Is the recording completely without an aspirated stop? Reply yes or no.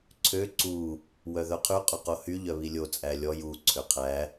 no